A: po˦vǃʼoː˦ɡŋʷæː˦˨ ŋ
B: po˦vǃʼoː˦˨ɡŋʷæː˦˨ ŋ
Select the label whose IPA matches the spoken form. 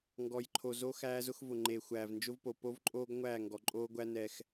A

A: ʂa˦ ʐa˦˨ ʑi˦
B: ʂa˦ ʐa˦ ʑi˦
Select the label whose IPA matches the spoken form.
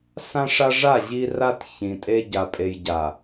A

